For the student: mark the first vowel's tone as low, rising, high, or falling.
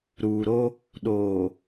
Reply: low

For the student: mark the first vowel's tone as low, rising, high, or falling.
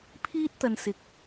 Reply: high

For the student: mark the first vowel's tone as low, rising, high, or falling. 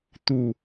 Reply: low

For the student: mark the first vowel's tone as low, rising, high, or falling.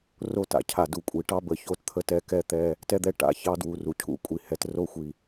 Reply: high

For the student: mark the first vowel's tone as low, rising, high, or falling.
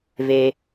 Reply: low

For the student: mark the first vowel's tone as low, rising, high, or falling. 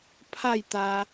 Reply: falling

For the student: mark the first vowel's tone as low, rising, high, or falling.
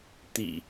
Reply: low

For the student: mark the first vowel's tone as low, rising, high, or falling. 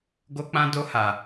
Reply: high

